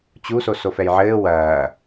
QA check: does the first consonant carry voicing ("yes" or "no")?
no